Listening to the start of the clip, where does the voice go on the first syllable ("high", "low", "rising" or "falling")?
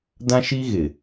high